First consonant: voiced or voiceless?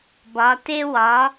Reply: voiced